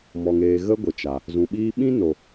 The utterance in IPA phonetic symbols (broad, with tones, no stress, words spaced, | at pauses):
mɔ˨ŋeː˨ ɣə˦ɡʷə˨t͡ʃa˨ | zũ˨ɓiː˧ ɓĩ˦no˨